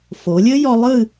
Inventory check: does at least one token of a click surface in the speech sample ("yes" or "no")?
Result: no